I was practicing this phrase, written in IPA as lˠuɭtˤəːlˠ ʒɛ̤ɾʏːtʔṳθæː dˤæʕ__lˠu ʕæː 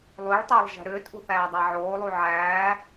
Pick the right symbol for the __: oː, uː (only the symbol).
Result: oː